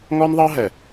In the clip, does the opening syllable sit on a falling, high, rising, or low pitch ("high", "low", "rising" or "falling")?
high